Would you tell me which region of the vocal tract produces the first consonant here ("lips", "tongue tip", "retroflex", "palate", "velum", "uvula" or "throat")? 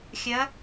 velum